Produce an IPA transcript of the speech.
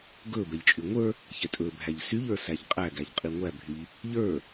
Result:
ɡ ɵ b ɛ ʎ t͡ʃʼ y ŋʷ ə˞ | ç ɛ tʼ ɵ bʱ æ ʎ s y ʎ ə˞ s æ ʎ qʼ æ ɡ æ ʎ qʼ i ŋʷ æ bʱ y ʎ | ʎ ə˞

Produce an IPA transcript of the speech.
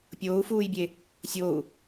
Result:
pʲ oː u̯ f uː j bʲ e | sʲ o u̯

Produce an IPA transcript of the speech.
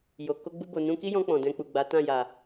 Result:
j o˨ k o˧ ɡ͡b u˧ b o˨ n ũ˧ k i˦ j ɔ̃˧ k͡p ɔ̃˨ d ɛ̃˧ k͡p u˨ ɡ͡b a˨˦ t ã˦˨ j a˨

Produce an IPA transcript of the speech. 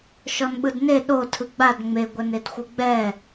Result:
ʃ ɔ n ɓ ɯ d n e ɗ o tʰ ɯ ɡ͡b a d ŋ͡m e ɡʷ ɛ n e d xʷ ɯ ɡ͡b ɛ

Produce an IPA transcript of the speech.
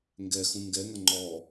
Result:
ŋ ɡ ɛ x ũ ŋ ɡ ɛ ŋ ʌ ŋ͡ǃ ɔ

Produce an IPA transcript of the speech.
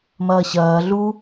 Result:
m ɐː ɕ ɐː ɮ u

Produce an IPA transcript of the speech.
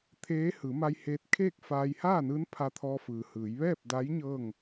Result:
t̪ʰ eː˧˥ h ɯː˩˧ m a˧ j h eː˧ t̚ kʰ eː˥˨ k̚ f aː˧ j h aː˥˨ n ɯː˧˥ n pʰ a˧ t̪ʰ ɔː˧ f ɯː˩ h ɯː˩˧ j ʋ ɛː˥˨ p̚ d a˧˥ j ɲ ɤː˥˨ ŋ

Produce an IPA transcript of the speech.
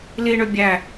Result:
l i ɳ ø bʲ æ

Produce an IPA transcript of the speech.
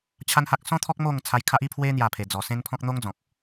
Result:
t͡ɕʰ a˦ n h a˦ k̚ s ɔ̃˦ t̪ʰ ɔ˦ k̚ m o˥˧ ŋ t͡sʰ a˧ j kʰ a˦ ʔ i˦ pʰ w e˦ n̪ j a˥˧ pʰ e˧ d͡z ɔ˧ s ẽ˦ n pʰ ɔ̃˦ k̚ n̪ o˦ ŋ d͡z ɔ̃˨ k̚

